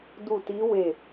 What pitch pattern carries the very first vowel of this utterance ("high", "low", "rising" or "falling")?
falling